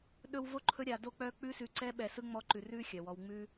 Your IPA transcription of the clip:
ɗ ɵ˦ w v o˥ ǃʰ ɵ˦ ɾʲ a˨ d o˥ k͡p œ˦ k͡p ʉ˦ s ʉ˨ ǀ ɛ˦ ɓ ɛ˨ s ɯ˥ ŋ͡m ɔ˦ ǃ ʉ˨ r ʉ˥ xʲ œ˩ w ɔ˨ w ŋ͡m ʉ˦

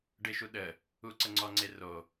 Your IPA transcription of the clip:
ɖ ɪ ʃ u ɗ ə | u ǀ ə ŋ͡ǀ ɔ ŋ͡ǀ e r o

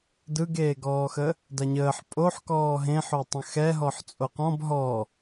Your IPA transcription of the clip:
d ɯ ɡ eː ɡ ɔː x ə | d a ɲ əː ħ pʼ o ħ k ɔː ɦ ẽ ħ o tˤ ə̃ x ɛ ɦ ɔ ħ t͡sʼ o q ɔ̃ b ɦ ɔ

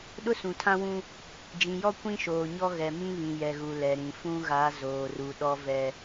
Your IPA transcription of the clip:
ɗ ʊ˦ s ũ˨ tʰ ã˦ w ũ˦ | d͡ʒ ĩ˨ j ɔ˦ kʷ ĩ˦ ʃ oː˨ ɲ ɔ˦ ɣ ɛ˨ m ĩ˦ β ĩ˨ j ɛ˨ ɣ u˨ l ɛ˨ ɾ ĩ˨ f ũ˦ ɣ a˨˦ z oː˨ r u˨ ɗ ɔ˦ v ɛ˦

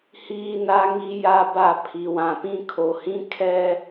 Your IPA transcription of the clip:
h iː˦ n a˦ ŋ i˦ j a˦ b a˦˨ pʰ i˨ w ã˨ p ĩ˦ kʰ o˨ h ĩ˦ kʰ ɛ˦

